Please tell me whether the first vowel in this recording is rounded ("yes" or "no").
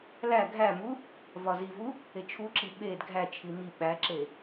no